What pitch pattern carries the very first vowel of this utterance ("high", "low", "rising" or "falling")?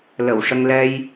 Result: low